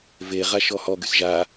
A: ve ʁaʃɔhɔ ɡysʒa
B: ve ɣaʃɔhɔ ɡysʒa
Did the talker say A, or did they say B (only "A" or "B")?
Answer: A